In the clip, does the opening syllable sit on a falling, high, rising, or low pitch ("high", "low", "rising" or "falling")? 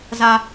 low